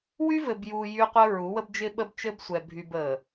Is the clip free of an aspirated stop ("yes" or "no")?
yes